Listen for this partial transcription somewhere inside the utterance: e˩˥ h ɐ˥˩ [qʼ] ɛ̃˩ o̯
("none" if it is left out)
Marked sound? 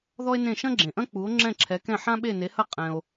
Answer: qʼ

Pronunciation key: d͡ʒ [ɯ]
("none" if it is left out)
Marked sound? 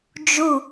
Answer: u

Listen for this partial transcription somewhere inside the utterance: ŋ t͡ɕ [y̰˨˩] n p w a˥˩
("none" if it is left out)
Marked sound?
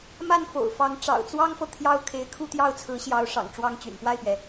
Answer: y̰˨˩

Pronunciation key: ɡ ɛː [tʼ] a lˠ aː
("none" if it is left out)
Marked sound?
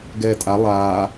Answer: tʼ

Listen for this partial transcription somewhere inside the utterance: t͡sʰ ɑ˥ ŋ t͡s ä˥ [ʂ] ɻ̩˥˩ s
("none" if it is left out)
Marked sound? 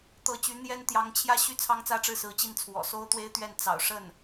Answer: ʈ͡ʂ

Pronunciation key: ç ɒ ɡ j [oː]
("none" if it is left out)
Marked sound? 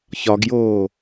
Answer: oː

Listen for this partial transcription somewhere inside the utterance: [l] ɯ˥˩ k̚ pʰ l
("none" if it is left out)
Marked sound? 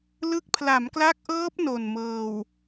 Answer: l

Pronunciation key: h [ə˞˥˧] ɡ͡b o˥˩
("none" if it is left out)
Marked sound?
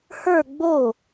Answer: ə˞˥˧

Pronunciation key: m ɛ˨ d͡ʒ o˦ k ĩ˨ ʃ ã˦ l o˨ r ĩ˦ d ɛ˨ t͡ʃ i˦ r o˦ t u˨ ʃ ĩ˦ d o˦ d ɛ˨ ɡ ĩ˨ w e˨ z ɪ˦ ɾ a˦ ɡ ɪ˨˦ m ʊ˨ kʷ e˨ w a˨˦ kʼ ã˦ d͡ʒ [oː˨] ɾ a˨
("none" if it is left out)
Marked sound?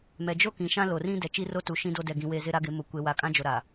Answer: o˨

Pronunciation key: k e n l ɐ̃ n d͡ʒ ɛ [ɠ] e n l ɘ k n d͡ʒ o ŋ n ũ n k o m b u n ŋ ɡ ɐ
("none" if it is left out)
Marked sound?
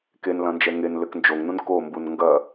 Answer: ŋ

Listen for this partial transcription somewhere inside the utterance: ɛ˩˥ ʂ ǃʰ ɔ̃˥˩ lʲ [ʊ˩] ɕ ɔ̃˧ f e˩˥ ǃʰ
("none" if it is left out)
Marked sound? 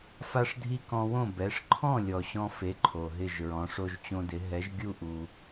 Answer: ɔ˩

